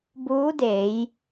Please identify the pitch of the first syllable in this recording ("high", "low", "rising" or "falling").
rising